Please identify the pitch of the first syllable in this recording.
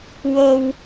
low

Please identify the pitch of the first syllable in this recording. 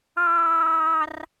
high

